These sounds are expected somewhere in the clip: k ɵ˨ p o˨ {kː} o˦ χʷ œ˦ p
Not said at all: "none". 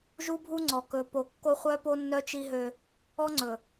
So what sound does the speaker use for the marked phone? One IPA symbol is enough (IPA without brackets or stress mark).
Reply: kː